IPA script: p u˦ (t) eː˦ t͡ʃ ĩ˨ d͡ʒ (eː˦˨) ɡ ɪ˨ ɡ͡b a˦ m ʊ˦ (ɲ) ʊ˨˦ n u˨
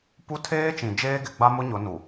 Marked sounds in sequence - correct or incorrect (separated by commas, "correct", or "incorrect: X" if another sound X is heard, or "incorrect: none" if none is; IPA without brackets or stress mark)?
incorrect: tʰ, incorrect: eː˦, correct